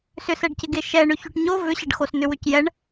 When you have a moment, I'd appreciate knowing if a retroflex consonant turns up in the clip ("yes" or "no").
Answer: yes